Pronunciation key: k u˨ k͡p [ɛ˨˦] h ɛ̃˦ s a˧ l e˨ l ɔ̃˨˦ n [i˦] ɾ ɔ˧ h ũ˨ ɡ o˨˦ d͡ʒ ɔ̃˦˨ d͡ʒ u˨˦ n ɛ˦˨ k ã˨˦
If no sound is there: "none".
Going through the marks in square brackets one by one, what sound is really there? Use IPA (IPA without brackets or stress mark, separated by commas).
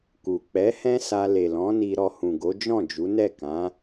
ɛ˨˦, i˧